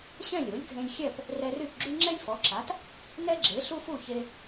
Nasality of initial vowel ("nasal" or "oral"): nasal